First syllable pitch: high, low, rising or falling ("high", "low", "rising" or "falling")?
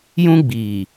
high